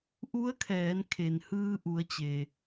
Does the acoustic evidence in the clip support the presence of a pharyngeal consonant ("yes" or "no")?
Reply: no